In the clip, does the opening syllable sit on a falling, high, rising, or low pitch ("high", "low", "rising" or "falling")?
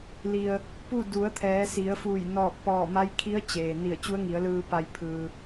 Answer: low